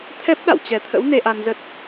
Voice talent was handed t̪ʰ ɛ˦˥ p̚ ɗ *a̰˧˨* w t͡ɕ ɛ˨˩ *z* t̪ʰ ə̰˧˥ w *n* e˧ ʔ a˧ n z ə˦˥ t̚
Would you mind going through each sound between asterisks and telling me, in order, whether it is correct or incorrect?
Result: correct, incorrect: none, correct

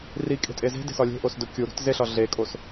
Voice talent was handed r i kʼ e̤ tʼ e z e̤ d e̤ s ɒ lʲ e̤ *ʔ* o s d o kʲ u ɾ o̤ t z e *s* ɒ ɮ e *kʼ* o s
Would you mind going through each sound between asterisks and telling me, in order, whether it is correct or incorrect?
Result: correct, incorrect: ɬ, correct

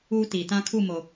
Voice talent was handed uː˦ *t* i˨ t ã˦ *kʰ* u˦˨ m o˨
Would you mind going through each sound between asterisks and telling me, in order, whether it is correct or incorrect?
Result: correct, correct

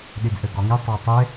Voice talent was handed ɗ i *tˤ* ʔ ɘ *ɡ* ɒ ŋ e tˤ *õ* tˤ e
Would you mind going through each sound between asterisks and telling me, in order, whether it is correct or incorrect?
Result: incorrect: d, correct, incorrect: o

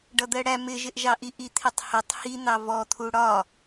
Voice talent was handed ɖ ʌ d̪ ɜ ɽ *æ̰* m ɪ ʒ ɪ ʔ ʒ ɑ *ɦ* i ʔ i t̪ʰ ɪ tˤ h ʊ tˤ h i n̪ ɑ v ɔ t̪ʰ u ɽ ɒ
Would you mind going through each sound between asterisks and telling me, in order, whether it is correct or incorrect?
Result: incorrect: æ, incorrect: ʔ

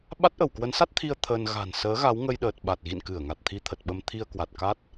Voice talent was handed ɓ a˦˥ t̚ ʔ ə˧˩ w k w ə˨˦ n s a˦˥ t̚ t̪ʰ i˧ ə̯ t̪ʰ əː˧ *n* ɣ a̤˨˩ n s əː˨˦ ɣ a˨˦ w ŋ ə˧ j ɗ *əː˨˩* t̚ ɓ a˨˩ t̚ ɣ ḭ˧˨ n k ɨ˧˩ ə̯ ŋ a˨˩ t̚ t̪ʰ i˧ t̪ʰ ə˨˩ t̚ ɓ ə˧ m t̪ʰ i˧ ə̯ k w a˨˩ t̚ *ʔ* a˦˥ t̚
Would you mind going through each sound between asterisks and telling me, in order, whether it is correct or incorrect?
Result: correct, correct, incorrect: k

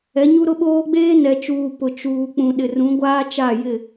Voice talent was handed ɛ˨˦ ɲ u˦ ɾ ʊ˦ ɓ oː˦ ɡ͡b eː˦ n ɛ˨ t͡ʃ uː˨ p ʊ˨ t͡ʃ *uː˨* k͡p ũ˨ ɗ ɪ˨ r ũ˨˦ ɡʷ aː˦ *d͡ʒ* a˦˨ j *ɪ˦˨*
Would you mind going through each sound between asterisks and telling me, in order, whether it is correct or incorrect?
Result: correct, incorrect: t͡ʃ, correct

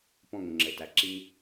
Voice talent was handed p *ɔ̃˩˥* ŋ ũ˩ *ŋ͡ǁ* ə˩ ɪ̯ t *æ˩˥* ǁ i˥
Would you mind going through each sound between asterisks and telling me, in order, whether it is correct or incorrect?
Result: incorrect: ɔ̃˥˩, correct, correct

